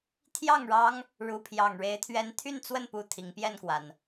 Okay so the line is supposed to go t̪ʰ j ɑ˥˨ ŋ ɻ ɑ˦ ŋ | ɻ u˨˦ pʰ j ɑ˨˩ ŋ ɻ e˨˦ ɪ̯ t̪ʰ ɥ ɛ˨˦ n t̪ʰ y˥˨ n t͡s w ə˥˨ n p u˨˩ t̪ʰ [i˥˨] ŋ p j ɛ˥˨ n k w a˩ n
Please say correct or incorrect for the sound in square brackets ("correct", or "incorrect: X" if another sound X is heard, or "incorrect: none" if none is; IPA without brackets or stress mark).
incorrect: i˨˦